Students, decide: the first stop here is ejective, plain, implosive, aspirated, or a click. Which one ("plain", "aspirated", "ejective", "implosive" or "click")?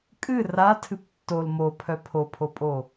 ejective